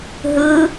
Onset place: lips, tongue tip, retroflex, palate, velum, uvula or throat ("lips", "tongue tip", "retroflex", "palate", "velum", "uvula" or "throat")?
throat